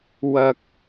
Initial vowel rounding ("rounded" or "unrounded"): unrounded